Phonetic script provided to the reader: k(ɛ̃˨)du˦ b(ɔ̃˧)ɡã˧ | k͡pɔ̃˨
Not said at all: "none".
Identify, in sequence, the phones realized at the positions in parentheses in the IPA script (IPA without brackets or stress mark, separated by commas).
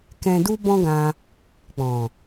ɛ̃˧, ɔ̃˦